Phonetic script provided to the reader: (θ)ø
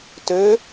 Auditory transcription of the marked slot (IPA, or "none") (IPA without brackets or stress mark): t